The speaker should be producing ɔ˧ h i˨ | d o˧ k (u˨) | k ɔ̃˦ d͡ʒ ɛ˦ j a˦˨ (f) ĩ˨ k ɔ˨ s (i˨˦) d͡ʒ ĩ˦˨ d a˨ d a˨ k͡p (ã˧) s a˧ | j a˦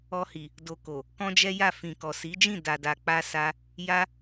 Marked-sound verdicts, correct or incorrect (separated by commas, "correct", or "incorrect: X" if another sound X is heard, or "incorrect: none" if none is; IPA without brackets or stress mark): incorrect: o˨, correct, correct, incorrect: a˧